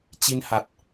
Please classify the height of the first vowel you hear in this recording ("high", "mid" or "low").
high